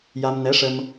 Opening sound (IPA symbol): j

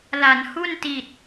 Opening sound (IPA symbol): l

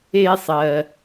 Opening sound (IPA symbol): eː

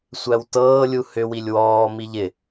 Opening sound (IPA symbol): sʷ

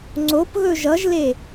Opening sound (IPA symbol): ŋ͡ǀ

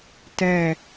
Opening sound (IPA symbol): t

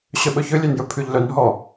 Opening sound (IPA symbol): ɕ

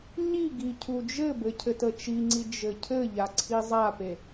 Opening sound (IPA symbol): ɲ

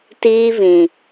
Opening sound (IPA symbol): t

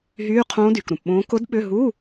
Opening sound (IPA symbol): ɦ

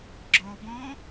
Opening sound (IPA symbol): ɡ͡ǁ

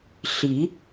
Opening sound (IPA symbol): ɬ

